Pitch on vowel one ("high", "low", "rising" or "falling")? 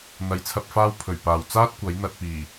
rising